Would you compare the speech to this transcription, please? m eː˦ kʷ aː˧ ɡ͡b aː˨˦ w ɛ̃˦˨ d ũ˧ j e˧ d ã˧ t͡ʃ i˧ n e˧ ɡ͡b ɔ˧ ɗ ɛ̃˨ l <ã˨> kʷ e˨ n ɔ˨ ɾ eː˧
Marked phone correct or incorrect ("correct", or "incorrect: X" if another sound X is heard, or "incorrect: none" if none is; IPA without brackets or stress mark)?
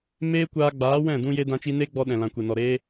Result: correct